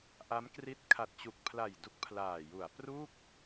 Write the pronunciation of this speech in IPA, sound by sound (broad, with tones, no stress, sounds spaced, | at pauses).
ʔ a˦˥ m k r i˦˥ t̚ kʰ a˨˩ t̚ t͡ɕ u˨˩ k̚ pʰ l a˨˩ j d u˦˥ k̚ pʰ l aː˨˩ j u˩˦ a̯ p r u˥˩ k̚